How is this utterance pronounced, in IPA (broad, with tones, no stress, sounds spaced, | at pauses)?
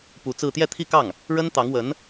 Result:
p u˧˥ t͡s ɹ̩˥˧ t̪ j ɛ˥˧ t̪ʰ i˥˧ k ɑ˥˩ ŋ | ɻ ə˥ n t̪ ɑ˧˥ ŋ w ə˧˥ n